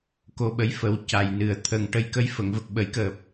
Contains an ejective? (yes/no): no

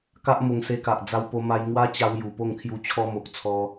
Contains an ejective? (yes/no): no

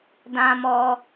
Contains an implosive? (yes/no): no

